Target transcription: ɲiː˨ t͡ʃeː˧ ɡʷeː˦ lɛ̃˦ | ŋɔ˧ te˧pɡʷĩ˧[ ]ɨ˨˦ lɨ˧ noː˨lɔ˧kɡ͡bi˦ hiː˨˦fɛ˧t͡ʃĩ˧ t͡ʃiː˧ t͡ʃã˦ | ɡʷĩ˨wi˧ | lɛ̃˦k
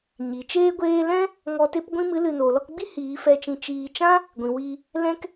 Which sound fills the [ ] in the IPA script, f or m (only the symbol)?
m